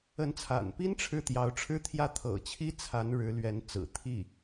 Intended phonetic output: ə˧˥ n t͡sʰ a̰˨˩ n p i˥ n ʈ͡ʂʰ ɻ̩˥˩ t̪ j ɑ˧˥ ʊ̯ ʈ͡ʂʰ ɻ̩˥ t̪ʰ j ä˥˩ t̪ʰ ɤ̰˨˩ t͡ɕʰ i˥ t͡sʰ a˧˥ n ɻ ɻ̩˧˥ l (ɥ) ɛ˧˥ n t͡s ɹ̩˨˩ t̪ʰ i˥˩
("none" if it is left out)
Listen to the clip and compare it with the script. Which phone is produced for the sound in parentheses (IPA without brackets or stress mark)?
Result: ɥ